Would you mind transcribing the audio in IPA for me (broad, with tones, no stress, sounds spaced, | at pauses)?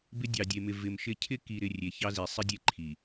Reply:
b ɪ˦ dʲ ɑ˨ dʲ e˨ m ɪ˨ v ɪ˨ m ʃ ɪ˦ cʰ ɪ˦ k i˨ ɾ ɪ˨ rʲ e˨ ç ɑ˦ z i˨ sˤ ɪ˦ dʲ e˦ ǃʰ i˨